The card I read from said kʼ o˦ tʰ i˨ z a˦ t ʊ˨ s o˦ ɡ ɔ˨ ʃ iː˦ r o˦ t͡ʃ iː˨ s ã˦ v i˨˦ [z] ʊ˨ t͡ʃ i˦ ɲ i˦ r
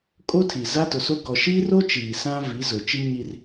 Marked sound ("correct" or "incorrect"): correct